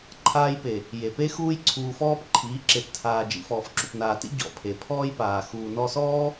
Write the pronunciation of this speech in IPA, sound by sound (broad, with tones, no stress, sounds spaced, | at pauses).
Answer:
ǃʰ aː˧ j p e˨ | j e˨ p e˦ x uː˦ j ǀʰ uː˧ f ɔː˦ p ǃʰ iː˨˦ ǁ e˨ p tʰ aː˨ d͡ʒ ḭ˨ f ɔː˨ f ǁ u˨ p n aː˨ t ḭ˦ ɟ ɔ̰˨ pʰ e˨ pʰ ɔː˦ j p aː˨ x uː˨ n ɔ˧ s ɔː˦